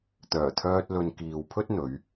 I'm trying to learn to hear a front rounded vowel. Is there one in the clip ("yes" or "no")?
yes